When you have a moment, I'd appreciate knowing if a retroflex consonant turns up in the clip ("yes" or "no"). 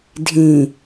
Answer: no